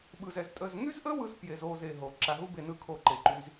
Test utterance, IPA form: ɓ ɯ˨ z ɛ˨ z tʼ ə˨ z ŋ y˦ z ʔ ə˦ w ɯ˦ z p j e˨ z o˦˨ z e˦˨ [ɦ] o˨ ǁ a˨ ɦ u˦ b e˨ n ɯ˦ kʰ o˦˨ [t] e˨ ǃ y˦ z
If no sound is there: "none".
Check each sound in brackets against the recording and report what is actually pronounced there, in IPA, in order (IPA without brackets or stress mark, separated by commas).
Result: ɦ, ǃ